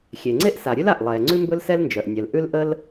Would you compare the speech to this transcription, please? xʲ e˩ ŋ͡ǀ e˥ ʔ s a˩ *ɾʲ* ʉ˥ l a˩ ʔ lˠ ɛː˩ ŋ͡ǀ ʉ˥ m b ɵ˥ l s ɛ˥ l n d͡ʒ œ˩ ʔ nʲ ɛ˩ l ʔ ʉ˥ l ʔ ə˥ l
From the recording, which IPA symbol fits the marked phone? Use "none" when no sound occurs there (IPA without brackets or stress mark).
ɾʲ